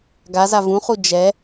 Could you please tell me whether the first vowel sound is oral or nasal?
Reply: oral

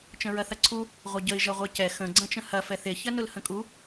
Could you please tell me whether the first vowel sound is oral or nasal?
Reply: nasal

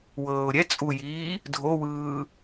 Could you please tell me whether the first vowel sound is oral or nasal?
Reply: oral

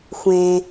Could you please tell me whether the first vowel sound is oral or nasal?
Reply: nasal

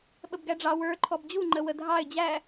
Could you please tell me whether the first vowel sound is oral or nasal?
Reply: oral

